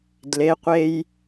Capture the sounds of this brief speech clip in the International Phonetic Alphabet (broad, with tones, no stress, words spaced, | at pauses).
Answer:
dle˩˧qʷe˧j